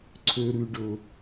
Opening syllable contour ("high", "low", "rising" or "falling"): low